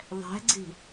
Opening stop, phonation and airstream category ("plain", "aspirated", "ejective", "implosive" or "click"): click